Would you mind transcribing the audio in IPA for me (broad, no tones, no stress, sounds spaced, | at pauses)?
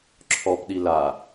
ǁʰ ɔ p ɗ i l a